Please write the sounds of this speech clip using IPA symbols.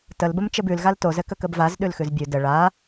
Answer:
təlbəm t͡ʃɘbʉl ɣaltozɘ kəkəbvaz ɗʉlxʉzbʲʉ də ɭa

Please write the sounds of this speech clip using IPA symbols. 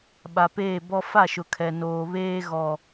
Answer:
ɓa˨peː˦˨bɔ˦ fa˦˨ʃʊ˨ kʰɛ˨ noː˨ βeː˦ ɣɔ˨

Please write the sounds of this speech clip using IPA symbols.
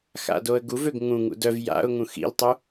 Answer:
xa̰doə̯ɡuvøɡ ŋũ ŋṵdœv ja̰ʊ̯ ŋũxḭltˤu

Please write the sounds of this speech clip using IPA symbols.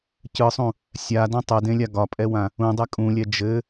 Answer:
cɯsˤũ | sʲadɔ̃ tˤɛdẽlʲa ɡɒpʼɛwã | ũdˤɛ kʼũlʲɛ d͡ʒɘ

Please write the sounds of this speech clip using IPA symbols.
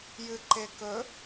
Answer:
jɨǃekɵ

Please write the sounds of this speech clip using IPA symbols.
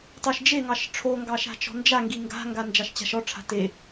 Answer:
tɑʃd͡ʒeŋɑʃ ʈ͡ʂʰoŋɡɑ ʃa̤t͡ʃɔ̤nd͡ʒaŋɡi ŋɡa̤ŋɡa nd͡ʒɑʃt͡ɕa̤ʃɔʈ͡ʂʰa̤ te

